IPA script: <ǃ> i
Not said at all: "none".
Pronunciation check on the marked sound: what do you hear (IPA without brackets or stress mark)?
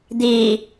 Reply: d̪